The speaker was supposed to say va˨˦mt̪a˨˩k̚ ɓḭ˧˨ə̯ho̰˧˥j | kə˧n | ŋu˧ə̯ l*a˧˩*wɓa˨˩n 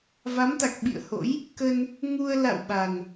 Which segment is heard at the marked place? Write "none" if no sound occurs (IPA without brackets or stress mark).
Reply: a̰˧˨